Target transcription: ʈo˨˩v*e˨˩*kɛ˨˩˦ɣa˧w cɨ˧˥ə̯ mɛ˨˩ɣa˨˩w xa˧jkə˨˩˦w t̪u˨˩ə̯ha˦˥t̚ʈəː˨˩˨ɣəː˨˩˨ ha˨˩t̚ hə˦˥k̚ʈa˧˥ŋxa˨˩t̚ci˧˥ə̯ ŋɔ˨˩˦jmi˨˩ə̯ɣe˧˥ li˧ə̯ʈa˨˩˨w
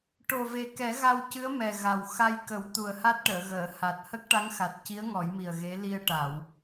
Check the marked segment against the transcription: correct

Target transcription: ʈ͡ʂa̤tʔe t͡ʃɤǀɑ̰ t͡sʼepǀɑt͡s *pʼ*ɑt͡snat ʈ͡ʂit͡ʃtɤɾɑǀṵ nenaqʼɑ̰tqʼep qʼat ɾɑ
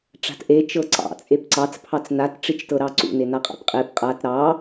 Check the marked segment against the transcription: incorrect: pʰ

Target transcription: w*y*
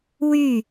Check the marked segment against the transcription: correct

